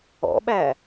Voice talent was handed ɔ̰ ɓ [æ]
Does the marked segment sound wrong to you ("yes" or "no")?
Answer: no